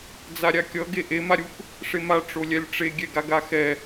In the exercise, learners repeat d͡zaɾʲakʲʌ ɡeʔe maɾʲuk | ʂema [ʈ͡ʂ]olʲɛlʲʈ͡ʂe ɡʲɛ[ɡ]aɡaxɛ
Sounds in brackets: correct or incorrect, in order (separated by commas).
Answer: correct, correct